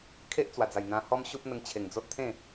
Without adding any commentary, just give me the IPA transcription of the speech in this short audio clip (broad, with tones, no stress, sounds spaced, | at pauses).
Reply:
kʰ e˦ ʔ t͡s w a˨˩ d͡z a˨˩ j n̪ ã˧ h ɔ˦ m ɕ u˦ p̚ n̪ ə˧ ŋ t͡ɕʰ e˨˩ ŋ d͡z o˦ t̚ t̪ʰ ẽ˥˧